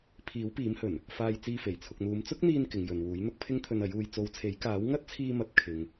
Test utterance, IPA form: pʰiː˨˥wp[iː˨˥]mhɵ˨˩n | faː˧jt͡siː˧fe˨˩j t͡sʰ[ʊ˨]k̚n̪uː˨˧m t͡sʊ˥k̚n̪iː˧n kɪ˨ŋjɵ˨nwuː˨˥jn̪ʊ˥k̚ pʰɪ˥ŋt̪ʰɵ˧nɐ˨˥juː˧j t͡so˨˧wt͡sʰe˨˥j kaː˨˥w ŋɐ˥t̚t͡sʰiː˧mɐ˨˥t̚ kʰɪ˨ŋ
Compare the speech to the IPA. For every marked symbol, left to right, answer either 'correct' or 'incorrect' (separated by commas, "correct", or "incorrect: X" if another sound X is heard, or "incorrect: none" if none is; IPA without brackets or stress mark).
correct, correct